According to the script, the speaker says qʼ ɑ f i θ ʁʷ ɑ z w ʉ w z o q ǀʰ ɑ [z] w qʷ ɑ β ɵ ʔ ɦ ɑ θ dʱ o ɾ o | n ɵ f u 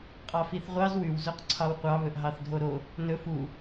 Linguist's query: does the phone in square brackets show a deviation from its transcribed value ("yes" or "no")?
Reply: yes